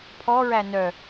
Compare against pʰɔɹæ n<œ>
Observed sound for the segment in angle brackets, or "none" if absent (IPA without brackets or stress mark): œ